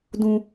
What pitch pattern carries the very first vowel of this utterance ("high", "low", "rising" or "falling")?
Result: high